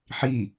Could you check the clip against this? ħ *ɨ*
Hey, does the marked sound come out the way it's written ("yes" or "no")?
no